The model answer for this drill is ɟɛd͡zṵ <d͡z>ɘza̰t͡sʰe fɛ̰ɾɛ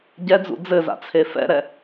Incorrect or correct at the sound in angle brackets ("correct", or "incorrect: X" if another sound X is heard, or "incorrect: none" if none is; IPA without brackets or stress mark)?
correct